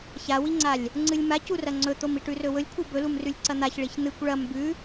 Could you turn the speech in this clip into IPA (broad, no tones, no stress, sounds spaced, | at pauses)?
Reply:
ç a w i ŋ͡ǀ a lʲ | ŋ͡ǀ ɨ lʲ m a c u r ɐ ŋ͡ǀ ɵ t̪ o m i ʈ ʉ r ɵ w ɵ lʲ kʷʰ ɨ b ɵ l u m r ʉ lʲ ǀ ɐ n̪ a ç ɭ i ç n̪ ɨ kʷ ɭ ɐ m b ʉ